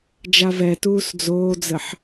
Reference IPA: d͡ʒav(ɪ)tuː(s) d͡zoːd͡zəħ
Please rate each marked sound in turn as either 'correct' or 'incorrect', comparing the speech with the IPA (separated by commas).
incorrect, correct